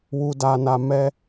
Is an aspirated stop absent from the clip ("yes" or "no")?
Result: yes